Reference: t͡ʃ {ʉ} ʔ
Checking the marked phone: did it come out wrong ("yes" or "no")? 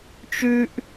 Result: no